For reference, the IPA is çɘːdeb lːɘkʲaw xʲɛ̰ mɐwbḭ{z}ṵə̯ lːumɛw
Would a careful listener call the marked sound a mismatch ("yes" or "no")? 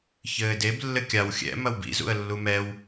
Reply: no